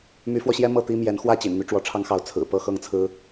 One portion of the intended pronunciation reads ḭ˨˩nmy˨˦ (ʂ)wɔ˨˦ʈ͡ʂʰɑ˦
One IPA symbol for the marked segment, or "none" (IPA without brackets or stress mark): ʈ͡ʂ